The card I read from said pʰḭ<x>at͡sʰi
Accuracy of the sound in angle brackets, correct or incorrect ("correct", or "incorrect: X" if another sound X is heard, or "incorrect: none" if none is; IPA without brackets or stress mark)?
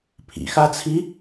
correct